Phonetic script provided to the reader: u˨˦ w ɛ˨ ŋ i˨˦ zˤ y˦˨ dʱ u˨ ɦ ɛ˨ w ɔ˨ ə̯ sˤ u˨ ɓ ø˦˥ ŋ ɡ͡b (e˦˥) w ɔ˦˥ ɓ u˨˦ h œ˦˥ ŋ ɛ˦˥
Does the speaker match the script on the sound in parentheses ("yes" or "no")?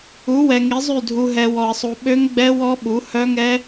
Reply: no